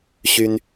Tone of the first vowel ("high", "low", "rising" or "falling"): high